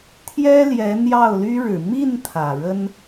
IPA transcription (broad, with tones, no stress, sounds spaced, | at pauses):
t̪ʰ j ɛ˥ l j ɛ˧˥ n̪ j ɑ˥˩ ʊ̯ l y˥ ɻ ɻ̩˨˩ m i˥˩ n t̪ʰ ä˨˩ ɻ ə˥ n